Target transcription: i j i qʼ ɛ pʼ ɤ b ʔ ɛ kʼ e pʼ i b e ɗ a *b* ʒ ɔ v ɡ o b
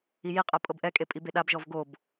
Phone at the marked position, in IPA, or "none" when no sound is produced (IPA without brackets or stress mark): b